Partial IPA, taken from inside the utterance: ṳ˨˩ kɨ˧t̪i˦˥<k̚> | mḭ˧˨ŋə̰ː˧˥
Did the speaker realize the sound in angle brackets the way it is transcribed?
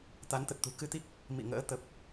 yes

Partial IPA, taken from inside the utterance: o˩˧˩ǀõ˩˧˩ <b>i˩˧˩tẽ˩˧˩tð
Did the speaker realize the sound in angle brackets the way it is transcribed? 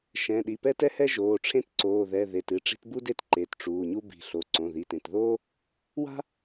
no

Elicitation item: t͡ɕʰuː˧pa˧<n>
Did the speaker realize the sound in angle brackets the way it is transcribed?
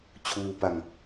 no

